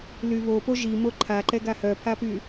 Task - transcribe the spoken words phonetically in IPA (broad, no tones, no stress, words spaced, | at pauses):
lyβopo ʒi moǃʰaǃɛ ɡahœpʰapy